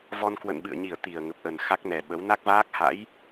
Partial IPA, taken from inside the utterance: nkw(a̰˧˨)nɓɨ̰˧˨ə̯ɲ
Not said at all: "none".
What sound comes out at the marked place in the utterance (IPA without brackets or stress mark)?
ə̰˧˨